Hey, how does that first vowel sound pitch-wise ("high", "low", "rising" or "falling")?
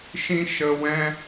high